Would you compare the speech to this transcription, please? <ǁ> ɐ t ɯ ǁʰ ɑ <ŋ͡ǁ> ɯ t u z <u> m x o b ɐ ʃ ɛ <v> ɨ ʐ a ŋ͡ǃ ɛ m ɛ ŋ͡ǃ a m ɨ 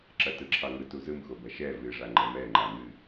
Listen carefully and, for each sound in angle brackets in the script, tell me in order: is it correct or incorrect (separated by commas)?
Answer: correct, incorrect, incorrect, correct